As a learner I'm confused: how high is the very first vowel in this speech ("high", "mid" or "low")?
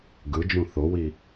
high